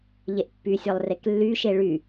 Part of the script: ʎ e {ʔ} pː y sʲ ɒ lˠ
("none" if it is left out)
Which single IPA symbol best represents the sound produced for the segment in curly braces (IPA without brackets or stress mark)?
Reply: ʔ